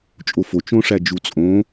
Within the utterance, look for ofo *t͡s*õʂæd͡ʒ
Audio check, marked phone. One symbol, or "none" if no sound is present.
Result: t͡ʃ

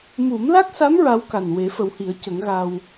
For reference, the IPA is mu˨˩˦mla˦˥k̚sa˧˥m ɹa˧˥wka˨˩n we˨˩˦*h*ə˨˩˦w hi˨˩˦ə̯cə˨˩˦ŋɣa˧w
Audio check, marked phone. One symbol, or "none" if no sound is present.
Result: f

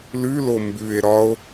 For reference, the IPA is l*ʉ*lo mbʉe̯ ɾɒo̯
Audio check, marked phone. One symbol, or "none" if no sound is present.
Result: ʉ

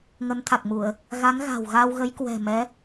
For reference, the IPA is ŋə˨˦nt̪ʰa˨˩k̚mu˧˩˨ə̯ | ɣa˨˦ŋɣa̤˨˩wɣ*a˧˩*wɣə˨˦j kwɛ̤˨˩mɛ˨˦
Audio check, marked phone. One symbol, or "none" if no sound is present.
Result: a˧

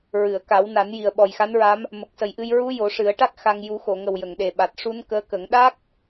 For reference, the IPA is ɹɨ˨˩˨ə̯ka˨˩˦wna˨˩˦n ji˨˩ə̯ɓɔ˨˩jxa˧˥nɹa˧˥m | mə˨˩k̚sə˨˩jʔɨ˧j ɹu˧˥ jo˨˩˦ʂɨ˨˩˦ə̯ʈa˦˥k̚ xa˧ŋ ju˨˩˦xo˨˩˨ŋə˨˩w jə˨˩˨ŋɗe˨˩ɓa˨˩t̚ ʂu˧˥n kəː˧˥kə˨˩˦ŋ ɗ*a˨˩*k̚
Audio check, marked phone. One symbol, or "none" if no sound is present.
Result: a˦˥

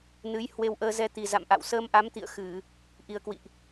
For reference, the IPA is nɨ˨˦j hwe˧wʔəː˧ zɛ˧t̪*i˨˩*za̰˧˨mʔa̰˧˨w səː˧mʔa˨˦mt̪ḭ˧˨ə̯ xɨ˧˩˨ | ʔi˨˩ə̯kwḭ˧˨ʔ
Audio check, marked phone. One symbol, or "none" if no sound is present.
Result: i˨˩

